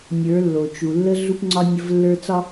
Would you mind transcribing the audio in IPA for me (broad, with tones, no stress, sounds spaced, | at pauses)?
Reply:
nʲ ə˞˨˦ lː o˨ t͡ʃ u˨ lː ə˦ ɮ u˦ p ŋ͡ǀ ɒ˦ nʲ ə˦ v lː ə˞˦ t͡s ɒ˦